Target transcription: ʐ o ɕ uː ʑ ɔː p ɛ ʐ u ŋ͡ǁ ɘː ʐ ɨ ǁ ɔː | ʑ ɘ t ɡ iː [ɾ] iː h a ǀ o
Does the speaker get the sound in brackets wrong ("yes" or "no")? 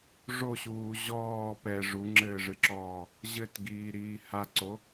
no